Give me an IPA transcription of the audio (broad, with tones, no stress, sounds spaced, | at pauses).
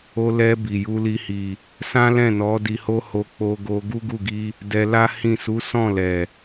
o˧ l ɛ˧ b i˨ j u˧ l i˧ h i˨ | s ã˦ l ɛ̃˦˨ n ɔ˨˦ d i˧ h o˦ h o˧ k͡p o˧ ɡ o˧ ɡ u˦ ɡ u˦˨ ɡ i˧ | d ɛ˧ l a˦ h ĩ˦˨ s u˨˦ s ɔ̃˦˨ l ɛ˨